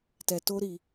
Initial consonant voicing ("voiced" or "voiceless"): voiceless